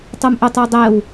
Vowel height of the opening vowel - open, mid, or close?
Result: mid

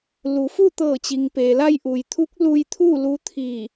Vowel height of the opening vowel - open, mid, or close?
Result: close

